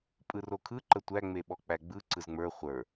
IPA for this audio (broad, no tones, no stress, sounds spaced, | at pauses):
pʼ ɯ r o kʰ ɯ ǃ ə tʷ æ ŋ͡m e ɓ ɔ k͡p æ ɡ͡b ɯ ǀ ɯ z ŋ͡m ə˞ χʷ ə˞